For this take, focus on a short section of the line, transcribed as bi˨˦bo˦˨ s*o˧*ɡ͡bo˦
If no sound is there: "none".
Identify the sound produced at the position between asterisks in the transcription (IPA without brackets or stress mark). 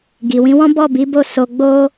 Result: o˧